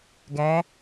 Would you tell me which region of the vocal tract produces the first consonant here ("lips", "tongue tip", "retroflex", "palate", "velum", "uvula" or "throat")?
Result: velum